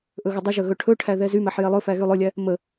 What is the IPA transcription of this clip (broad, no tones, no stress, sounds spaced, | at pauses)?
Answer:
ʔ ɵ ɣ ə dˤ ə ʒ ɵ ɣ ɵ ʈʰ ɵ ʈʰ æ ð ɛ z y m æ ħ j ɛ lˠ ɵ f æ ɣ y lˠ ɵ lʲ æ | m ə